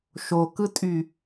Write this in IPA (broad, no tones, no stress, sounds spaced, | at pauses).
ʃ o k ɯ tʼ y